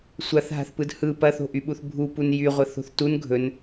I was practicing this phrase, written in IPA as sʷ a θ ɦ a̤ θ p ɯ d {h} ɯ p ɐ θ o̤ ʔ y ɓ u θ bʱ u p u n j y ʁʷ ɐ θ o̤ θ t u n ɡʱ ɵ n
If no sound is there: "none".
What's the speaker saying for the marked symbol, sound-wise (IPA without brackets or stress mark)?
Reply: h